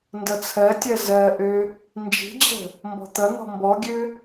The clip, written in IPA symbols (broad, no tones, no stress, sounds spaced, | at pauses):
n d ʌ t͡sʰ ɜ tʲ ɜ z ɜ ʔ ø | n d͡ʒ i̤ d͡ʑ ə̤ | m b ɔ̤ t̪ ʌ n̪ ɔ̤ m b ɔ ɡʲ ø